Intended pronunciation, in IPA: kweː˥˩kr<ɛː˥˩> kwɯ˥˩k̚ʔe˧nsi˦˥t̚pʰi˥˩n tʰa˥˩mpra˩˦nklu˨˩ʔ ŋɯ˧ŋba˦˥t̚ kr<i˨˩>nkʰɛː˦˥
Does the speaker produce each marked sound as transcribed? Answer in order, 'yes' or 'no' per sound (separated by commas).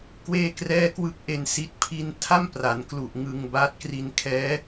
yes, no